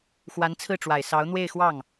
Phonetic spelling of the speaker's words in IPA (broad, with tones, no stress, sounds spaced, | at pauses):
x w a˧˥ n t͡sʰ ɹ̩˥˩ ʈ͡ʂ w a˨˩ ɪ̯ s ɑ˧˥ ʊ̯ n̪ w e˥˧ ɪ̯ x w ɑ˥˩ ŋ